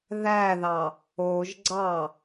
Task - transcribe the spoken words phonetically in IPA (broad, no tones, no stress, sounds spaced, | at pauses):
ð æ ð ɑ | o ʒ ɡ͡ǀ ɑ